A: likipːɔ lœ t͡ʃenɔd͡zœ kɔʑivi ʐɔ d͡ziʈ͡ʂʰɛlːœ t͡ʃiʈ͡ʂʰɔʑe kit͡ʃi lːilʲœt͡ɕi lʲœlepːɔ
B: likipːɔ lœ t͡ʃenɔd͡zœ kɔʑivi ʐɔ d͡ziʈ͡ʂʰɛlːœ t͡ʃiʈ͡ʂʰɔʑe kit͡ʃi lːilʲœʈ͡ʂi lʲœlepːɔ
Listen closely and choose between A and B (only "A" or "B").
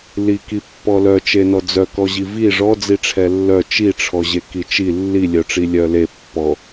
B